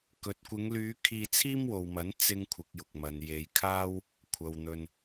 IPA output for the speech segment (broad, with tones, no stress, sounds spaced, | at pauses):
k ɵ˨ t̚ kʷ ɪ˨˧ ŋ l yː˨˧ kʰ iː˧ t͡sʰ iː˥ m w o˨ w m ɐ˨˥ n t͡s ɪ˥ ŋ kʷʰ ɪ˨˥ k̚ j ʊ˨ k̚ m ɐ˨˧ n j e˨˧ j kʰ aː˥ w | kʷʰ ɐ˨ w n̪ ɵ˨ n